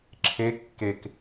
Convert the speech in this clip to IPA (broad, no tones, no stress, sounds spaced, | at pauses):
ǁʰ e kː e k